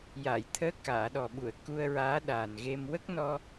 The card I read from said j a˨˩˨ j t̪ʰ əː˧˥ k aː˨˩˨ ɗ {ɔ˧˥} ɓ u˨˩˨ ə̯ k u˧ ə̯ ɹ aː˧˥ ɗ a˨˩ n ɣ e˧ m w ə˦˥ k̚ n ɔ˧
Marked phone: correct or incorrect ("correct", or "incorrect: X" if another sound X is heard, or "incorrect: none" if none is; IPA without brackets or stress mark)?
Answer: incorrect: ɔ˨˩